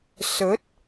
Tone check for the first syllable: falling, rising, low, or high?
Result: rising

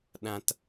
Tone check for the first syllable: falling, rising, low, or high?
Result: high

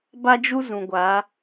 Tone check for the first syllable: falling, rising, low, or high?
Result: high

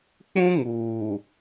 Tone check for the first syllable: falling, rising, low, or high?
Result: high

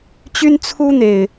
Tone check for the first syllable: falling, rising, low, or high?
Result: high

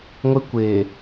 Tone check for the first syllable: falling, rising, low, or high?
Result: high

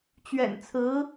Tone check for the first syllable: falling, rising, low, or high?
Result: low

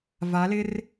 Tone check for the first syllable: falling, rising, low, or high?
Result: rising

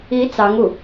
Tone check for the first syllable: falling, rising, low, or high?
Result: rising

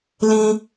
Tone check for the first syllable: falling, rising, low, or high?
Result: high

